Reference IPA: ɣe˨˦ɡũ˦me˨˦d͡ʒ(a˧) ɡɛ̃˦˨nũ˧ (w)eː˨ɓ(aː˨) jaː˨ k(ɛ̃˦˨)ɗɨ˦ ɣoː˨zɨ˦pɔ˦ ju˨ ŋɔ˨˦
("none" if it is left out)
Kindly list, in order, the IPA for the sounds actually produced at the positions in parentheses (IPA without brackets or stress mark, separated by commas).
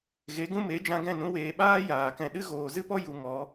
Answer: ã˧, w, aː˦, ɛ̃˨